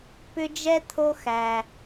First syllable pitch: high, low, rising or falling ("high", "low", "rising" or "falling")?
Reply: high